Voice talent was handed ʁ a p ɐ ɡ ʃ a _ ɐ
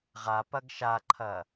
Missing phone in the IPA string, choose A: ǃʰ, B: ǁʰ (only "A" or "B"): A